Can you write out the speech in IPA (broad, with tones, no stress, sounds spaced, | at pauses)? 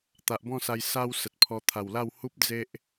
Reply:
t̪ a˨ ʔ b ɔ̃˥˧ s a˧ j s a˦ w s ə˨ t̚ pʰ ɔ˧ t̪ʰ a˨˩ w l a˥˧ w h u˦ p̚ d͡z e˦ ʔ